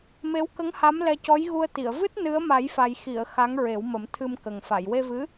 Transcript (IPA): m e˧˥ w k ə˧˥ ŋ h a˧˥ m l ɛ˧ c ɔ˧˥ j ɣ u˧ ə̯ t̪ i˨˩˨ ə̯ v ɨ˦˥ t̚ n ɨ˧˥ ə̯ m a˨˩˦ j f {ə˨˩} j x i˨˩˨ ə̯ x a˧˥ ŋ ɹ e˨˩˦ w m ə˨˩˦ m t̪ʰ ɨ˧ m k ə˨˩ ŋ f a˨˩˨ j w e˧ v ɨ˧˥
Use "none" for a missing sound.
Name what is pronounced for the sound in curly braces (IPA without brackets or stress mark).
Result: a˨˩